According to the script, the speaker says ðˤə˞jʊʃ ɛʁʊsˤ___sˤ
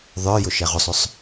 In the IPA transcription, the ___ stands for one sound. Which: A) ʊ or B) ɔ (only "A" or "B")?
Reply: A